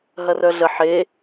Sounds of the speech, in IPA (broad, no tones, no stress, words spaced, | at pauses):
ɦɐrœɮə ħe